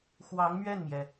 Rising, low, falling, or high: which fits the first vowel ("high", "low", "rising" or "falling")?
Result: rising